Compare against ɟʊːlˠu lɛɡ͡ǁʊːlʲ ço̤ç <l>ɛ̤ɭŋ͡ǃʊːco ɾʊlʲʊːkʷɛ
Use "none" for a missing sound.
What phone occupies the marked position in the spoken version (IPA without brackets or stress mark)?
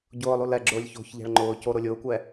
ʎ